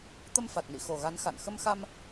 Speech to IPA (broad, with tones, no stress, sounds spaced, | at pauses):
t̪ ə˧ m f a˨˩ t̚ n ḭ˧˨ x o˨˩ ɣ a˨˦ n x a̰˧˨ n x ə˧ m x a˧ m